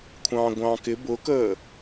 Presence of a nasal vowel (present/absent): present